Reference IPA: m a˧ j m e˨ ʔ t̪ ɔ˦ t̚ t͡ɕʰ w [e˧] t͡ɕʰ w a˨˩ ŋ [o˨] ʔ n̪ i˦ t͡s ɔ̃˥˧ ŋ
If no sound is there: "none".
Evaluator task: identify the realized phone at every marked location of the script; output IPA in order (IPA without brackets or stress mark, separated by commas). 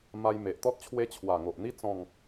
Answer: e˦, o˨